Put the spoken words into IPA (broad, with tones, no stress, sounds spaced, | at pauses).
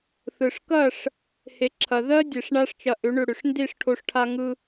θ ɯ˨ ʂ k ɐ˦˨ ʂ | h e˨ ǁʰ ɐ˨ ð ɜ˦ dʲ e˧ ʂ ɳ a˦ ʂ t͡ʃ ɐ˧ ʔ ʏ˨˦ ɳ ʏ˧ ɽ ʏ˨ ʂ n d i˦˨ ʂ ʈʰ o˧ ʂ ʈʰ a˧ ŋ ɯ˧